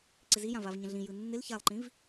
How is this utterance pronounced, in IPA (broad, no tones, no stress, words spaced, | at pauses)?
ǀɪzijã vavɲə̃ɮĩ jɯnːɪl çalˠǃĩv